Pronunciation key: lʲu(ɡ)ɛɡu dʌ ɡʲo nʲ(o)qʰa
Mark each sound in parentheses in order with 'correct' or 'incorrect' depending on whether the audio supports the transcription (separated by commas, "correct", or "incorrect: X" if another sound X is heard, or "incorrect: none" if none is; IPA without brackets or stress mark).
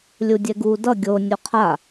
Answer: incorrect: dʲ, correct